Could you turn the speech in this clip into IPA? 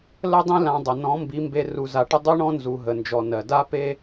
l ə˦ dˤ ĩ˦ l ã˧ dˤ ə˨ n ɔ̃˨˦ m b i˨˦ m b e˧ r u˧ z a˧ ʈ ə˦ dˤ i˦ ɳ ɔ̃˦ n z u˨ ɦ ə˨ n d͡ʒ ɔ˨ n ɜ˨ d a˦ p e˦

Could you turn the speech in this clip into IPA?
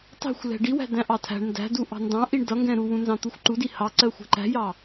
tˤ ɛ̤ xʷ l ɛ̤ ɖ i w æ̤ d æ̃ ʔ ɑ tʰ æ̤ ɳ n d æ̤ d u ʔ ɑ̤ n d ɑ̃ ʔ i ɳ d ʌ ŋ ɡ ɛ̃ ɾ u w ũ n z ɑ̃ t̪ u xʷ ǃ u d i h ɑ ǀ ɜ xʷ ɛ̤ ǃ æ̤ j ɑ

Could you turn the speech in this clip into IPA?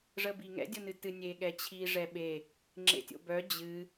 ʐ ə b i ŋ ɛ̰ dʲ o n ɨ t ɨ nʲ e ɠ ɛ t͡ɕʰ i ʐ ɛ ɓ e | ŋ͡ǁ ḛ tʲ o̰ b œ d͡ʑ ɨ

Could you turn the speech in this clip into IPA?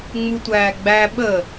ŋ͡m u tʷ æː ɡ͡b æ ɓ ə

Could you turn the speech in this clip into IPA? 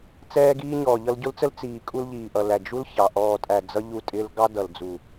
t͡s ɛː˧ ɡ iː˧ ɲ ɔː˨ ʎ ʌ˧ l ɟ ʊ˦ l t͡s ə˦ l t͡s iː˨ kʼ u˧ l ʎ iː˨ ʔ ʌ˨ l æ˨ d͡ʒ u˦ l ç ɑ˨ ʔ ɔː˨ tʼ æ˨ d͡z ʌ˧ ʎ u˧ tʼ ɪː˧ l ɡ ɑ˧ d ʌ˨ l d͡z u˨

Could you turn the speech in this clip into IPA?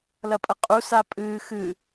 l ɐ pʼ ɐ qʼ u s a pʼ ɨː x ɨ

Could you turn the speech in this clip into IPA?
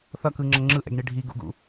θ ʌ k ɯ ŋ͡ǁ ʌ ŋ͡ǁ ɯ ʔ ɛ̰ ɡ ɳ i ɖʱ i ɡ ṵ ɡ ṵ

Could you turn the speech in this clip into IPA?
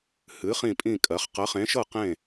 h ɨ˨˥ χ ĩ˥˨ pʼ ĩ˥˨ kʼ ɜ˨˥ χ q ɜ˨˥ χ ẽ˨˥ ʃ ɤ˥˨ q ẽ˥˨

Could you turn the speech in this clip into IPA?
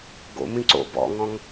ɡ o̰ m ĩ ǀ o̰ b ɔ̰ ŋ ɔ̃ ŋ

